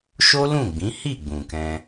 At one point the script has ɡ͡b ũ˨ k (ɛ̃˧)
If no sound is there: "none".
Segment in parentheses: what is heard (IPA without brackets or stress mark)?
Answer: ɛ̃˧